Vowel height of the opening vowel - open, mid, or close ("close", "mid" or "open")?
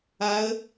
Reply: open